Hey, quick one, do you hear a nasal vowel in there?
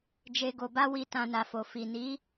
yes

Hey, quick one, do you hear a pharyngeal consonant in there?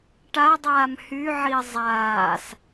yes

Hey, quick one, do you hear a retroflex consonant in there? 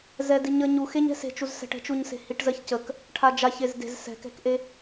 yes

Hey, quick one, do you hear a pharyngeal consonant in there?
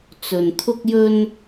no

